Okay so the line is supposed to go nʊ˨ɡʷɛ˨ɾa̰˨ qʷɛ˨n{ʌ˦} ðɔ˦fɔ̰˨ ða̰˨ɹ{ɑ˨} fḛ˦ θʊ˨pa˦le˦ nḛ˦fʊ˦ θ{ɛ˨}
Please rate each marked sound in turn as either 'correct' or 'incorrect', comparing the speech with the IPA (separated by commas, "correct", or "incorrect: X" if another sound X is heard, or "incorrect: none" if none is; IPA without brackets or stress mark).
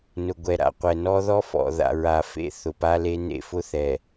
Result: incorrect: ɔ˦, incorrect: a˨, correct